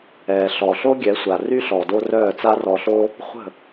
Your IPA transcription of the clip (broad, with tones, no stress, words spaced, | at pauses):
ɛː˨ ɬɔ˨ɬo˦ ɡʲɛ˨˦sʷa˨ ry˦ ɬɔ˨do˧ rœː˦˨t͡sa˦rɔ˧ɬo˦ | χʷə̤˦˨